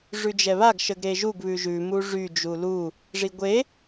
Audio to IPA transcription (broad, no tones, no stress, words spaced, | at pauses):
ʐʉd͡ʒɛβaɡ ʃəɡɾeʒuɡ βʉʒʉ muʐy d͡ʒulu | ʐiɡʷe